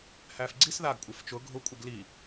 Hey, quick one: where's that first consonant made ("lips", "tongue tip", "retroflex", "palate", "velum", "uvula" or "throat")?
throat